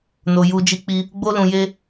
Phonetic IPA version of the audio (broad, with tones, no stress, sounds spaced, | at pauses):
n o˧ j u˧ d͡ʒ i˦ k͡p i˦ | ɡ͡b o˦ l ũ˧ j e˦